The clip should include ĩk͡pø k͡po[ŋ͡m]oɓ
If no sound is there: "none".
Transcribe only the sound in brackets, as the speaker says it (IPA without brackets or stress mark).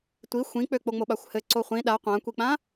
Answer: ŋ͡m